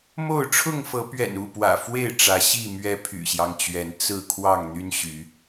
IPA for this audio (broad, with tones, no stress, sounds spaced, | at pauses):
m o˥˨ ʊ̯ ʈ͡ʂʰ ʊ˥˨ ŋ f ɤ˨˦ p ɥ ɛ̰˨˩ n u˥˨ p w ä̰˨˩ f w e˥˨ ɪ̯ ʈ͡ʂ ä˨˦ ɕ i˥˨ m ɥ ɛ˦ pʰ y̰˨˩ ɕ j ɑ˦ ŋ t͡ɕ ɥ ɛ˨˦ n t͡s ɹ̩˥˨ kʰ w ɑ˥˨ ŋ n̪ y˦ n ɕ y˨˦